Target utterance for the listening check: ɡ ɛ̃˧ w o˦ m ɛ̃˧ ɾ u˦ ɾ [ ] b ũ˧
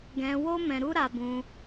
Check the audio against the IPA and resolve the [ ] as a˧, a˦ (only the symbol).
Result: a˧